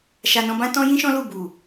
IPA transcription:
ʃ a˧ n ɔ̃˧ b ã˦ t ɔ̃˦ j ĩ˦ ʃ ɔ̃˦ l u˦˨ b u˨

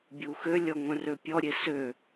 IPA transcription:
bʲ u x ø lʲ ɔ ŋʷ œ̃ r ø pʲ ɔ ɾʲ e s ø

